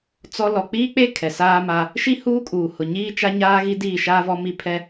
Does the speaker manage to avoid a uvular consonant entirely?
yes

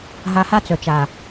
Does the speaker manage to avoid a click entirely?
yes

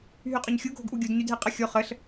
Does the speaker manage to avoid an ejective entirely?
no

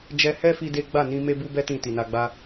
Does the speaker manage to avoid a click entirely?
yes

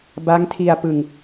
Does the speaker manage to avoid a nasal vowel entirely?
yes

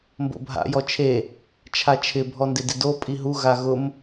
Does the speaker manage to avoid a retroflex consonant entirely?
yes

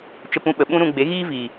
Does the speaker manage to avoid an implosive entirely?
no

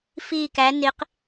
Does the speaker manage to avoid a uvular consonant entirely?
no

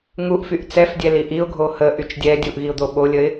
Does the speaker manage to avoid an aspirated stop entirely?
yes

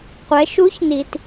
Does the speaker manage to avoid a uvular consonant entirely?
no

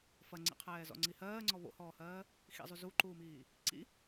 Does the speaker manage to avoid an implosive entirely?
yes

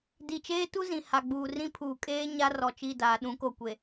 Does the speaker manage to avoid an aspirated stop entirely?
no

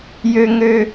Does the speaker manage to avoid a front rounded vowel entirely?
no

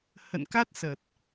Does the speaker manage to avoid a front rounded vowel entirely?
yes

